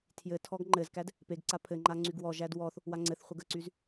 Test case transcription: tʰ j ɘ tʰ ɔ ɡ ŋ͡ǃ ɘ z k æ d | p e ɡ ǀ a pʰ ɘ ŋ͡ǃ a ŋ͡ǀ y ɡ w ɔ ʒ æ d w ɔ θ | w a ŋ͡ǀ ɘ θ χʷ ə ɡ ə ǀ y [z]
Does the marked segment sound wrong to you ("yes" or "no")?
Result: no